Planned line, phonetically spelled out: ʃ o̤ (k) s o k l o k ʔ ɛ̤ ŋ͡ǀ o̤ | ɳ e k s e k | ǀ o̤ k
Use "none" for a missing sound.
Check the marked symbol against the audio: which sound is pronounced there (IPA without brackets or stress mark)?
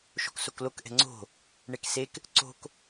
k